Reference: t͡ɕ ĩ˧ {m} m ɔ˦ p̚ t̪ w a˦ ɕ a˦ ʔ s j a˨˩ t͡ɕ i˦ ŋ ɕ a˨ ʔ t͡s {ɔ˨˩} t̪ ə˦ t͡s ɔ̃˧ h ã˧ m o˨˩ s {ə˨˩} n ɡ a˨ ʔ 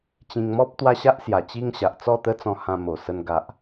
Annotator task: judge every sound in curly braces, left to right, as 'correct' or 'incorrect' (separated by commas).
incorrect, incorrect, incorrect